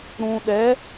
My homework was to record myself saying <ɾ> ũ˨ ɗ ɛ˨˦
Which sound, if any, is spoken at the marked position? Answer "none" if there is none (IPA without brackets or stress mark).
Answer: ɾ